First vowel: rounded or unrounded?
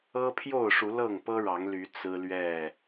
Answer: unrounded